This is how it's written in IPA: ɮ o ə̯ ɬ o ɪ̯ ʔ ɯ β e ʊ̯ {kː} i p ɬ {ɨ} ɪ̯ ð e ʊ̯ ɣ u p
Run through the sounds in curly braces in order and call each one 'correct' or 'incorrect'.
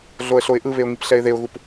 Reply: incorrect: ŋ, incorrect: ɛ

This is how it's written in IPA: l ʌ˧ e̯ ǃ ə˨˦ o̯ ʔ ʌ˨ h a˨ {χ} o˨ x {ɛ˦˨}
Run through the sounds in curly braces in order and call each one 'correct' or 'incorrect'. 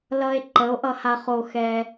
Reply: correct, incorrect: ɛ˧

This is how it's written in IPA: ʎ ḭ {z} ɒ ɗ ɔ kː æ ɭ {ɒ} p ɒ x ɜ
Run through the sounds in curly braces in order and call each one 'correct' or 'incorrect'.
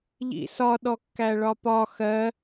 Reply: incorrect: s, correct

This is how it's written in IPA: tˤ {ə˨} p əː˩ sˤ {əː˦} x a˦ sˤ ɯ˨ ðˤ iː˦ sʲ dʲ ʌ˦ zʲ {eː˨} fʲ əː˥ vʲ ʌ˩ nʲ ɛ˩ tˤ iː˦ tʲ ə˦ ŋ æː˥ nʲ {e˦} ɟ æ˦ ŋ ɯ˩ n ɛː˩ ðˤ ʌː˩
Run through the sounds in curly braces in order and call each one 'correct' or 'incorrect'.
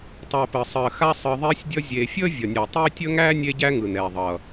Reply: incorrect: æ˨, incorrect: əː˩, correct, correct

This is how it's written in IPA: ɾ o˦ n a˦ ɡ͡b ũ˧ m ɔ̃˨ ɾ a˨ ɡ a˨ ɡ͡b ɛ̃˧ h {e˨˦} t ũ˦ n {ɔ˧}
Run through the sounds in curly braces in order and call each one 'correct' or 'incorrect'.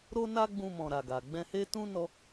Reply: incorrect: e˦, correct

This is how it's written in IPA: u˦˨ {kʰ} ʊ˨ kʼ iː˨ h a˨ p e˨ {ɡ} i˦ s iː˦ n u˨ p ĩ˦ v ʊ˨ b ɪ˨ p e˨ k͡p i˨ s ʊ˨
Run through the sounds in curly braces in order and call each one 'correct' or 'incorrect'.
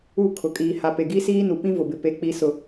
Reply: correct, correct

